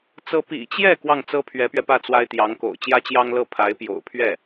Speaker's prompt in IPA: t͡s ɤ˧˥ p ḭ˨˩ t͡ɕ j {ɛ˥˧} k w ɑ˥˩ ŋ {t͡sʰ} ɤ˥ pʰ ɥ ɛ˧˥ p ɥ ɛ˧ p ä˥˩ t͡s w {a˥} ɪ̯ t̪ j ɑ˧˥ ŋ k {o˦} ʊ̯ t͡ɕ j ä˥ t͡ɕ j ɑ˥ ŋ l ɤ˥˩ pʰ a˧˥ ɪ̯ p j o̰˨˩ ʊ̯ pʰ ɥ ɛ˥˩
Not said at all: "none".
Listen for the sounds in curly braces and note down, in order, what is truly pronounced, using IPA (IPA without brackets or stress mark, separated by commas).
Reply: ɛ˥˧, t͡s, a˥, o̰˨˩